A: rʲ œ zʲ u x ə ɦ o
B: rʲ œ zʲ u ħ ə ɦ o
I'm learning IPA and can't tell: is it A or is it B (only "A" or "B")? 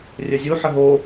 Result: B